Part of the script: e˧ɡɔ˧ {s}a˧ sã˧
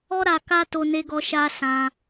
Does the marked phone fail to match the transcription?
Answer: yes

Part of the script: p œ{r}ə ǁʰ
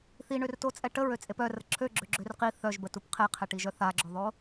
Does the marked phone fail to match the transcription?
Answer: no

